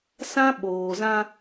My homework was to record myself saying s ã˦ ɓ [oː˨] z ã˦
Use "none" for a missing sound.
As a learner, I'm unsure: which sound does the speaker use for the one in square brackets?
oː˨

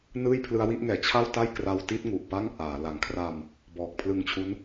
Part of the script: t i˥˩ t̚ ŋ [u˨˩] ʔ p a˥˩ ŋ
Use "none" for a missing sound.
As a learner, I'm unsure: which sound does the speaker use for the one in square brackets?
u˨˩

